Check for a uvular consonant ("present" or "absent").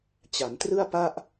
absent